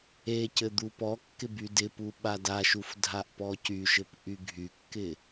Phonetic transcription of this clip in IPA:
e c ɘ d̪ u p ɔ kː ɪ b y d ɪ p u ɓ a d a ʃ u f dʱ a ʔ p ɔ c y ʃ ɘ p ʔ y ɡʱ y kː ɪ

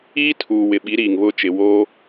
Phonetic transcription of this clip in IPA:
i˦ tʰ uː˨ w ɪ˨ ɓ i˨˦ ɾ iː˨ ŋ β ʊ˦˨ t͡ʃ ɪ˨ w oː˦

